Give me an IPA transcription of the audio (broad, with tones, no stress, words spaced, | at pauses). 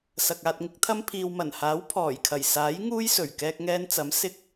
sɐ˨k̚aː˧t̚ŋɪ˥k̚t̪ʰɐ˥m pʰiː˨wmɐ˨˩nhaː˨˥w pʰɔː˨˩jkʰɐ˨˩jsaː˨˥j ŋuː˥jsɵ˨˩ɥ kɛː˧k̚ŋɛː˧nt͡sɐ˨˥m sɪ˧k̚